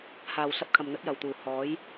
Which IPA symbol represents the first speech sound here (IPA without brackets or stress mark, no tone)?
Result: h